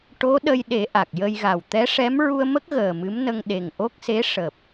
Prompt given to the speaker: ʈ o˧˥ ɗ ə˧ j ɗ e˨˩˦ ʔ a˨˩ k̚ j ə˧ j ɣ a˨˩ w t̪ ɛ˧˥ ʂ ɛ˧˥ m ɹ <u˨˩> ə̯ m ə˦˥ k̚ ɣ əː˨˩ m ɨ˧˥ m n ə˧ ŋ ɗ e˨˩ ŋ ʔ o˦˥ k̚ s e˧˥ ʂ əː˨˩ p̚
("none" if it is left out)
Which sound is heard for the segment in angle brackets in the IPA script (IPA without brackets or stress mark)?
u˧